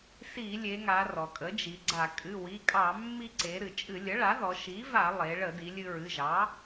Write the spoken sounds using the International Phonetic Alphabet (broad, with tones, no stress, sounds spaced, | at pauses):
s i˧˩˧ lʲ e˩˧ ŋ a˩˧ r ɔ˩ kʼ ə˩˥ d͡ʒ i˩˧ ɡ͡ǀ a˧˩˧ kʼ ɨ˩˧˩ w i˩˧˩ kʼ ɑ˧˩˧ mː i˧ ǀ e˩˧ ɾ ɨ˩ t͡ʃʼ ɨ˧˩˧ lʲ ə˩˥ ɭ a˩˥ ð ɔ˩˧ ʃ i˩˥ v a˧˩˧ lˠ e˩˧ ɭ ə˧˩˧ d i˩˧ lʲ ɨ˧ ɹ ɨ˩˧˩ ʒ ɑ˩˥